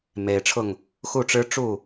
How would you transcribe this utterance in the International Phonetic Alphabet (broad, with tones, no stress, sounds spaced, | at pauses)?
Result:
m e˨˩ ɪ̯ ʈ͡ʂʰ ʊ˥˩ ŋ | x u˥˩ ʈ͡ʂ ɻ̩˥ ʈ͡ʂ u˥˩